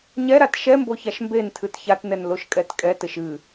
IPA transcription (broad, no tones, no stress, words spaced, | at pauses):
ɲɛɾat ʃɛmboçaʃ mbentʰɨt çatnɛnloʃkʼɛt kʼɛtɘʃ ɨ